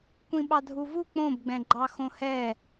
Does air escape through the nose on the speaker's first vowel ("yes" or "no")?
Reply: yes